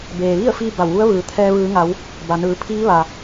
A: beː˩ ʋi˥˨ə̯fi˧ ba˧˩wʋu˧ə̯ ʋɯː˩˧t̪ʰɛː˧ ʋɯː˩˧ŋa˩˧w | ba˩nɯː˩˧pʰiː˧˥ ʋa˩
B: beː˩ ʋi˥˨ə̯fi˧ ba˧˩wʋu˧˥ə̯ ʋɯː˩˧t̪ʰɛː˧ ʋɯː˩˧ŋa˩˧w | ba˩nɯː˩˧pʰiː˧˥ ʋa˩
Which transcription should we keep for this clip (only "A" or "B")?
B